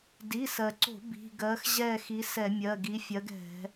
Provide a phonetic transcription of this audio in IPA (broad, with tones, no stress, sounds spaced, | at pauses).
d i˩˧˩ s ɜ˩ ǀ o̤˧˩˧ b i̤˩˧˩ ɡ ɜ˨˥ x ʑ ɛ˦˨ x i˨˥ s ɛ˧˩˧ mʲ ɜ˩˧˩ ɡ i˨˥ fʲ ɜ˨˥ ɡ ɛ̤˧˩˧